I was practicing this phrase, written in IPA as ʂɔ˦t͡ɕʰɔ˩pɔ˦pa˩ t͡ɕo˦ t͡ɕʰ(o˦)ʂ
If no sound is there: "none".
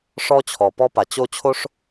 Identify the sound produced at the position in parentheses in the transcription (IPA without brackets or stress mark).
o˥